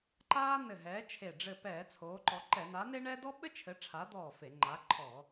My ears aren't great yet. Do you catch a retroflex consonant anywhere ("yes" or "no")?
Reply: yes